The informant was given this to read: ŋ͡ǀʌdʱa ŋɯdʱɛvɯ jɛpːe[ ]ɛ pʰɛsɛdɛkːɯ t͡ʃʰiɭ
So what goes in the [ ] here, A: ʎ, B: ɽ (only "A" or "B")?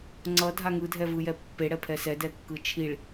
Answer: B